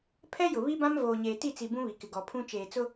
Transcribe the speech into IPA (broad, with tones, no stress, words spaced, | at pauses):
pʰɛ˦jʊ˨βi˦bã˦m voː˨ɲeː˨ti˦˨t͡si˨ bũ˦βi˨kɪ˨ ɡɔ˨pʰũ˦ t͡ʃeː˨t͡sʊ˦